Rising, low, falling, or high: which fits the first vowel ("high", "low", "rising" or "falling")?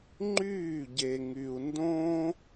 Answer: falling